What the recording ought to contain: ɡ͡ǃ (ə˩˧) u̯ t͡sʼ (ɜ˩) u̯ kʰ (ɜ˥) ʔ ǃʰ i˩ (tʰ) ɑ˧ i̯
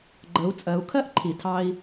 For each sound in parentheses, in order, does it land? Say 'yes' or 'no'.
yes, no, yes, yes

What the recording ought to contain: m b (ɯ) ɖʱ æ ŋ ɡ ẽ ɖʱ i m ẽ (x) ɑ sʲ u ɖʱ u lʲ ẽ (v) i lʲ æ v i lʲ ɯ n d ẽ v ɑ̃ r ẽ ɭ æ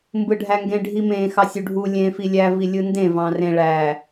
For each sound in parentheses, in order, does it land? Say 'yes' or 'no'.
yes, yes, no

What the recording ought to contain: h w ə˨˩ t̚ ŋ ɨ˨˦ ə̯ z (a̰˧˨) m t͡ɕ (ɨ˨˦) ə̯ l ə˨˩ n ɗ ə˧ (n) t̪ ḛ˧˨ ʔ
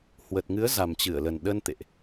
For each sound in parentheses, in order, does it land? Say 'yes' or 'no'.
no, no, yes

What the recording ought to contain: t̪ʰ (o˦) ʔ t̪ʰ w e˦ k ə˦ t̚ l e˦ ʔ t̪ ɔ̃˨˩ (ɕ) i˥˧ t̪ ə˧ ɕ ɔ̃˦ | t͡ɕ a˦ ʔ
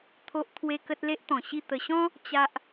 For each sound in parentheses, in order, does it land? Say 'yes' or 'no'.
yes, yes

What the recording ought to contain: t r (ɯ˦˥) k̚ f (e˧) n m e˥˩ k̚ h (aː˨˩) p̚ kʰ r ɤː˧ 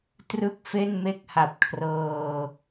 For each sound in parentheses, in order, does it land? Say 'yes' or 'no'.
no, no, no

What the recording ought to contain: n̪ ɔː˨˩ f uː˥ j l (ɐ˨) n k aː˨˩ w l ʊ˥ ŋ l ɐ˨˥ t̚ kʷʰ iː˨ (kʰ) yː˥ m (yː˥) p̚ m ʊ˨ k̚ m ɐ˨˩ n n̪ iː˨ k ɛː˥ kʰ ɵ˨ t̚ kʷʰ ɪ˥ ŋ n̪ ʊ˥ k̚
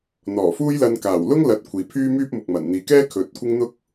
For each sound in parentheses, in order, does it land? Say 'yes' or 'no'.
no, no, yes

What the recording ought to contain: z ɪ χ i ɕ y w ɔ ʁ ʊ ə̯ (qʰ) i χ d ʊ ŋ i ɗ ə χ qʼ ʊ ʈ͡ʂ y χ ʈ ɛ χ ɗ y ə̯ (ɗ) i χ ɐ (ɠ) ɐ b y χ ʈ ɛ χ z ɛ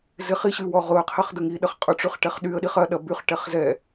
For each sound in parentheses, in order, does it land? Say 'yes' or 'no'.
yes, yes, no

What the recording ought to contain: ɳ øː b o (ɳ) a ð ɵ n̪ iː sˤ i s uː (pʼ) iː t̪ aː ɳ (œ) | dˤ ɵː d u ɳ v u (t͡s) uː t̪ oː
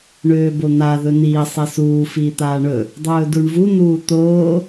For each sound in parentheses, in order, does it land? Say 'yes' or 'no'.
no, no, no, no

